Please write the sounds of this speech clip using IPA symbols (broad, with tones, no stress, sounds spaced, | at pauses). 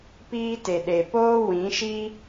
p iː˦ t e˨ ɗ e˨ p oː˦ w ĩ˨˦ ʃ i˦